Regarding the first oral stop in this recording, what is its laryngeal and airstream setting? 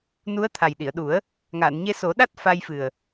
aspirated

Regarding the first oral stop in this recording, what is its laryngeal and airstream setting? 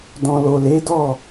plain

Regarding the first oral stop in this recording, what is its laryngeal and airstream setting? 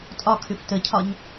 ejective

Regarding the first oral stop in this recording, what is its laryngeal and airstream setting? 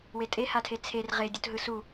ejective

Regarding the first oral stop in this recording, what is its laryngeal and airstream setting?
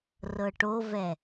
plain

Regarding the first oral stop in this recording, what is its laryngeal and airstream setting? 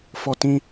plain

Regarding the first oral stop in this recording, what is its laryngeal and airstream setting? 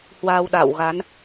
implosive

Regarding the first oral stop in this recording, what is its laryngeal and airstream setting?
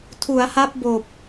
aspirated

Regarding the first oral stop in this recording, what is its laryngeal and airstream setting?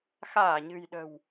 implosive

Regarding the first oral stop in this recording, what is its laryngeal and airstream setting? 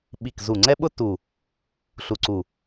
implosive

